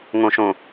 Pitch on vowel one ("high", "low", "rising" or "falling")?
low